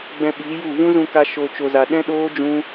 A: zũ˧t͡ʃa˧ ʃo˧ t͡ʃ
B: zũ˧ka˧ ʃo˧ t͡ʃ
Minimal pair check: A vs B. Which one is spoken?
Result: B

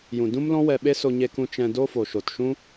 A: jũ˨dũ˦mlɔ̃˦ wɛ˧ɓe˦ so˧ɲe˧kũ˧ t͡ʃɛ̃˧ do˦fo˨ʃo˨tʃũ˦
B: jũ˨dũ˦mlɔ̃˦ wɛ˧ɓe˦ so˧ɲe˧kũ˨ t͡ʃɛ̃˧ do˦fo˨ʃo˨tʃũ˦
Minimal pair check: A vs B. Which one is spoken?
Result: A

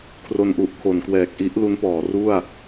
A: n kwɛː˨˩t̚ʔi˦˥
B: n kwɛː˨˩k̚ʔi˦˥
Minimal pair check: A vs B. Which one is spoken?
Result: B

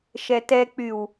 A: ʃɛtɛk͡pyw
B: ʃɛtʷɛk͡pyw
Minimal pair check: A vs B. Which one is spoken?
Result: A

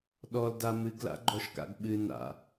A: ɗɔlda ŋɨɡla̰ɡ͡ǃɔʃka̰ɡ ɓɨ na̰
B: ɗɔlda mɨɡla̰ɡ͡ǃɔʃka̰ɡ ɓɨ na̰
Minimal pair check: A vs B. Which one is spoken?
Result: B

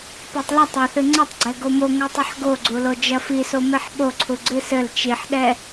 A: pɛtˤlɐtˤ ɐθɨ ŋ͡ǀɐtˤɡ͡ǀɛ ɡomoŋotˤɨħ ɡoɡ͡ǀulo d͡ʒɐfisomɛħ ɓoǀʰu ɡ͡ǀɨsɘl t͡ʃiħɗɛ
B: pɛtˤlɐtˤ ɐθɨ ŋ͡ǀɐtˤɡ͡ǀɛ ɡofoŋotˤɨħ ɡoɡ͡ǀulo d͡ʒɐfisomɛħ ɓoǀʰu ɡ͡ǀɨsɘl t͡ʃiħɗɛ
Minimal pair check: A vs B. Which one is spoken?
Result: A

